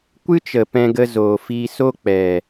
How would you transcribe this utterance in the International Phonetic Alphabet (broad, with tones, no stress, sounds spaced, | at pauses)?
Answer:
kʷ ɨ˦ t͡ʃ ə˨ p ɛ̃˧ ɡ ə˧ z oː˨ f iː˧ s o˦ k͡p ɛ˨